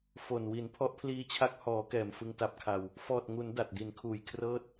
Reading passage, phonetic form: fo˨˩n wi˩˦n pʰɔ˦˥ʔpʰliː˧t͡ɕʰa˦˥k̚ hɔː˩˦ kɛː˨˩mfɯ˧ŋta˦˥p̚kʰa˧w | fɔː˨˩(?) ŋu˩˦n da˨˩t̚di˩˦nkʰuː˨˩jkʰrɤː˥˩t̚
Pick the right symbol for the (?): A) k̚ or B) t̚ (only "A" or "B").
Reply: B